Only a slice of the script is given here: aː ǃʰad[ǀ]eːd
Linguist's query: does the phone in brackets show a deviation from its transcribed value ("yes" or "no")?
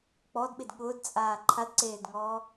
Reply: no